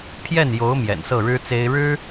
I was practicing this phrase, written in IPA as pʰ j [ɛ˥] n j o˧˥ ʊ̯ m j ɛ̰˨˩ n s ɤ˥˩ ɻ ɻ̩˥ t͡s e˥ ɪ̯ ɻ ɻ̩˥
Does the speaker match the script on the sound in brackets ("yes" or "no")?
no